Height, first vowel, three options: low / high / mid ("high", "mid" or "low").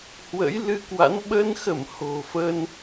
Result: mid